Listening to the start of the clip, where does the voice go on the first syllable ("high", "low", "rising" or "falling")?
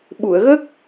low